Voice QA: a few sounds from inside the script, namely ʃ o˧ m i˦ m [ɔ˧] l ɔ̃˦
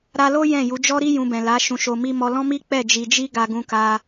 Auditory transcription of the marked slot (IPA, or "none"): ɔ˧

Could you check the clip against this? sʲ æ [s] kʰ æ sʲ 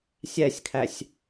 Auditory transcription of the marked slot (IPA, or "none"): sʲ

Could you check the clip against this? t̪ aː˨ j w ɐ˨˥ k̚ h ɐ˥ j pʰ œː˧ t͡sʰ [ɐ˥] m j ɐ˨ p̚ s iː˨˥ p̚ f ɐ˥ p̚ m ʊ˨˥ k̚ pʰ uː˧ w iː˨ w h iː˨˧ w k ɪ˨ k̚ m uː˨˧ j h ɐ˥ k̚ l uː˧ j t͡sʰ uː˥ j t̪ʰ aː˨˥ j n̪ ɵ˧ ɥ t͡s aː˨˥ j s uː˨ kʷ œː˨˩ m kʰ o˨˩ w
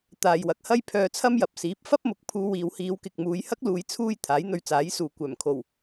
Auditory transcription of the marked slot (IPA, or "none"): ɐ˥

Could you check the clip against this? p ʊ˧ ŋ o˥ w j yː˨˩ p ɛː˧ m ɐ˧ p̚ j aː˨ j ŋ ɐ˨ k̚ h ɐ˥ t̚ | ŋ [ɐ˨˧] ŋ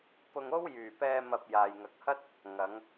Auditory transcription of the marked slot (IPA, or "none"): ɐ˨˧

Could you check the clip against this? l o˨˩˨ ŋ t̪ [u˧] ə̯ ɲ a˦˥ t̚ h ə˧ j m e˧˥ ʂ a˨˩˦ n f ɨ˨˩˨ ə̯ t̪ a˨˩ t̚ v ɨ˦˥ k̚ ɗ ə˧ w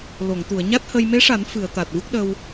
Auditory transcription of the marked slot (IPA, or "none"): u˨˩˨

